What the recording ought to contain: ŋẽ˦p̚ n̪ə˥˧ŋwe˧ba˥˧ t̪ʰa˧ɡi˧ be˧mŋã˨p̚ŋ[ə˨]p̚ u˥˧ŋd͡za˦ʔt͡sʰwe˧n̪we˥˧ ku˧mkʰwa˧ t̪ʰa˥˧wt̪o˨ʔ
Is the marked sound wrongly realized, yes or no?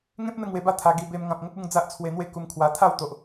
yes